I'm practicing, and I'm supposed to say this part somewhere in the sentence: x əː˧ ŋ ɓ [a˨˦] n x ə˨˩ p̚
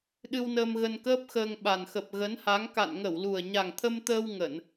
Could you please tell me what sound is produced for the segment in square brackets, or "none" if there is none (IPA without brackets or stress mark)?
a˨˩